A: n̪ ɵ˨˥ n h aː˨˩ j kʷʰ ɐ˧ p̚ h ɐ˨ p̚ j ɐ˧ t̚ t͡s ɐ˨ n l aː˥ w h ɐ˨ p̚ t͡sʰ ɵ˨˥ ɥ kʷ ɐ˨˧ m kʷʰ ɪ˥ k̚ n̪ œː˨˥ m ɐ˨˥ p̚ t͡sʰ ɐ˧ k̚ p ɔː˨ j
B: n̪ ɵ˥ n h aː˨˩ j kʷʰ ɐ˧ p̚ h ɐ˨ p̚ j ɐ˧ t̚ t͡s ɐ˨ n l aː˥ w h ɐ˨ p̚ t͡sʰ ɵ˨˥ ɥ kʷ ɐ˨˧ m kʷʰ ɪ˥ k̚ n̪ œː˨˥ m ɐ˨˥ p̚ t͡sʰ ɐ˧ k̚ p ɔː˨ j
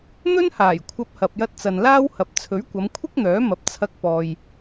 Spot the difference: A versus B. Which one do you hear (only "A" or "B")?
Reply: B